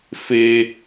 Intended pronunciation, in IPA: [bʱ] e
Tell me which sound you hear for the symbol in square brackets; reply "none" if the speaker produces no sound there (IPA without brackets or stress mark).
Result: f